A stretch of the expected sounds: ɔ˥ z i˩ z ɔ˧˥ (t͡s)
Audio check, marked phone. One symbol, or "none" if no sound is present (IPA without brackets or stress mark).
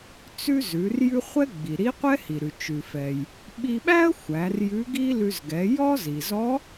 none